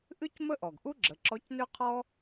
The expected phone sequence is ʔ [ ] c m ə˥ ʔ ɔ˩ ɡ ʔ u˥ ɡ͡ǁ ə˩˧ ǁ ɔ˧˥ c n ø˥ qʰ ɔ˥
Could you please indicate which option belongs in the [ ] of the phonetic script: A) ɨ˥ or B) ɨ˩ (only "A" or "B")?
A